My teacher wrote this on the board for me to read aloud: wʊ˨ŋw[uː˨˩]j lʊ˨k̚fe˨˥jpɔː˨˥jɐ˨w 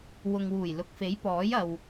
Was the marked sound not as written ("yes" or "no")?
no